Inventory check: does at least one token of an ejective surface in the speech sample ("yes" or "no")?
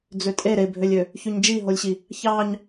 yes